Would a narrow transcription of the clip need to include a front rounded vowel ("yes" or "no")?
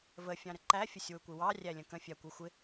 no